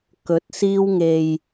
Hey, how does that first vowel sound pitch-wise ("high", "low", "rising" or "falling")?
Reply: rising